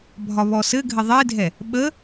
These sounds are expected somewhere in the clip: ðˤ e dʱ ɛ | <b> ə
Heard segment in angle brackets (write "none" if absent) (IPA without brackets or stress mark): ɓ